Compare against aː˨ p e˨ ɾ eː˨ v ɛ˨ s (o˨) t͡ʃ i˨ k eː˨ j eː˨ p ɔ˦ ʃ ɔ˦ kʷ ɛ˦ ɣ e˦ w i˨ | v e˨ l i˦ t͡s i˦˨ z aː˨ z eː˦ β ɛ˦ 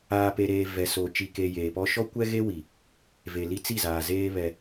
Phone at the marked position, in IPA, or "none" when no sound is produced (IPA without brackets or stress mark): o˨